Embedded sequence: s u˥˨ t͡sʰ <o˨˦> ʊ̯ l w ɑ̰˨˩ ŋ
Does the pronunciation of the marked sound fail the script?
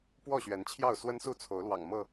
no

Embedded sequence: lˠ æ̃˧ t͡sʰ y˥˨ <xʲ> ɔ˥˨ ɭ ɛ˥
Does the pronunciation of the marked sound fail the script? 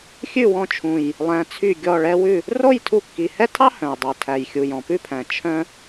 yes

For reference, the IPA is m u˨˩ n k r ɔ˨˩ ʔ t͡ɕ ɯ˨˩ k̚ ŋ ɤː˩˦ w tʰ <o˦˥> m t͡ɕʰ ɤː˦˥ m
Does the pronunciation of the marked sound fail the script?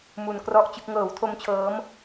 no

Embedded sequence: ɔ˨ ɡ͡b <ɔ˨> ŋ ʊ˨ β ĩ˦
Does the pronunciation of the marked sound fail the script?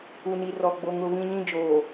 yes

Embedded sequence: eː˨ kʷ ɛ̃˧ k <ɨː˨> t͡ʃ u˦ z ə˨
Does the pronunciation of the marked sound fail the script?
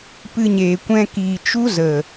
yes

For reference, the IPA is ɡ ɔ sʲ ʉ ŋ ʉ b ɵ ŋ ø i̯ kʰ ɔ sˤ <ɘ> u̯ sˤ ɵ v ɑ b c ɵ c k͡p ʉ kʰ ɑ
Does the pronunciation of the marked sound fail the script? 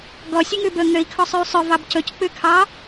yes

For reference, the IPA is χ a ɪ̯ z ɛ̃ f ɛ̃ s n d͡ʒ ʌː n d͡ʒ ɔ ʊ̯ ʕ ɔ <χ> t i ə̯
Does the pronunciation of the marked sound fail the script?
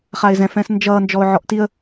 yes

